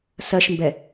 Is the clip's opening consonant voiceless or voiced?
voiceless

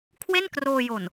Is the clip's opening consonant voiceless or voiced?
voiceless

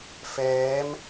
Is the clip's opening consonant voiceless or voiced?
voiceless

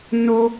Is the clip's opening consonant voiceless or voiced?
voiced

